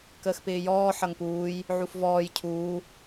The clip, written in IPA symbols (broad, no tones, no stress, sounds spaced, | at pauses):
k əː x p ɪː j ɔː ħ ʌ ŋ p uː j | ʕ u f v ɔː j cʰ uː